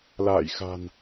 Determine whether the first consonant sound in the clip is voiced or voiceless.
voiced